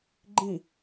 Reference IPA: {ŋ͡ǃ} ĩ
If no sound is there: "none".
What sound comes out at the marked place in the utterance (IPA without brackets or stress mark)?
ɡ͡ǃ